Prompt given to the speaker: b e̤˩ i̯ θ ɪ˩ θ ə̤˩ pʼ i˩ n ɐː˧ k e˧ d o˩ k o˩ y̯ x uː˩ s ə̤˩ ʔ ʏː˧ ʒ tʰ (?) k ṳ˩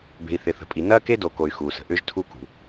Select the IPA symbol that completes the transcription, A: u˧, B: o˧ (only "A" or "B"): A